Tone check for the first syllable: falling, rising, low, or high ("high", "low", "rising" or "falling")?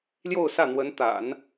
falling